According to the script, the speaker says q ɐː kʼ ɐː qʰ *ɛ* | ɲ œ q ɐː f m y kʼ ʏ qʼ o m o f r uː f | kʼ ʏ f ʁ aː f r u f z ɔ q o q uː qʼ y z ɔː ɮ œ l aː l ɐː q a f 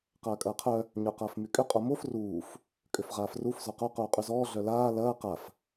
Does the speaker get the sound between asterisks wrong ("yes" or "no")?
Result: yes